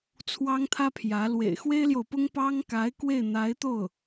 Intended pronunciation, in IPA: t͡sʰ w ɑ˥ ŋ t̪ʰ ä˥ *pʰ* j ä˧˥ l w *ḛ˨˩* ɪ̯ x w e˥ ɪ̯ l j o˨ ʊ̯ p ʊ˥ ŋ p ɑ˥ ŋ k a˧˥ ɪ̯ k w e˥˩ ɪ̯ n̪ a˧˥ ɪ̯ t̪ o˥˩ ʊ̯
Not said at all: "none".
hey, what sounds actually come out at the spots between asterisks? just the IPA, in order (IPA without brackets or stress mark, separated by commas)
pʰ, ḛ˨˩